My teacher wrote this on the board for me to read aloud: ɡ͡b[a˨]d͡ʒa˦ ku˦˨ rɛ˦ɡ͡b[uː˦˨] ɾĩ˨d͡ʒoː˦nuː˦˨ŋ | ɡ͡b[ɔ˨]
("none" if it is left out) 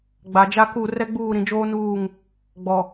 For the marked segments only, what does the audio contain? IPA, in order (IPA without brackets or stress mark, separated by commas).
a˨, uː˦˨, ɔ˨